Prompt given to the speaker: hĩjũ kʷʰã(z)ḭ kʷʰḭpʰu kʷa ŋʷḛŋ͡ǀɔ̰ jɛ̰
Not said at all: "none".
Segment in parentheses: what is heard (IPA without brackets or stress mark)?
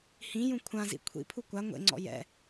z